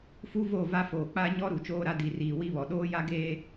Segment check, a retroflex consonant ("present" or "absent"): absent